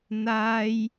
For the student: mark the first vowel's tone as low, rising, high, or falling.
high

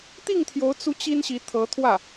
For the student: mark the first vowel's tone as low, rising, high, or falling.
falling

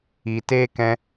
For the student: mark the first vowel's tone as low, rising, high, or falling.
low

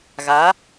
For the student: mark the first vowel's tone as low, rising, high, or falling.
rising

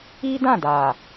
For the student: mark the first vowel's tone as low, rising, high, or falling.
high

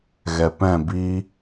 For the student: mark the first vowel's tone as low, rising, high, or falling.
low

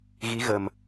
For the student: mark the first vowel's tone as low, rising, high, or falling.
rising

